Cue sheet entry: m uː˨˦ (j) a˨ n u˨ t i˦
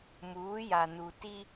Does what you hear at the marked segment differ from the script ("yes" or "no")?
no